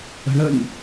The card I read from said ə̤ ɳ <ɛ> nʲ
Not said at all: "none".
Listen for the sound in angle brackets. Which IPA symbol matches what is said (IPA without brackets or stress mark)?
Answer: ə